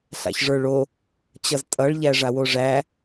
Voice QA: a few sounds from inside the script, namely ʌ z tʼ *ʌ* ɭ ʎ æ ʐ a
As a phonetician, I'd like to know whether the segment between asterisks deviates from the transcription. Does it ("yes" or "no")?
no